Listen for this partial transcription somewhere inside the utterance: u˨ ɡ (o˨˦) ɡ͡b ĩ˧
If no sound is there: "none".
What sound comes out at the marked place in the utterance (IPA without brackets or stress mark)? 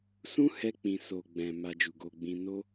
o˧